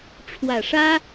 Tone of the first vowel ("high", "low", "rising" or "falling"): low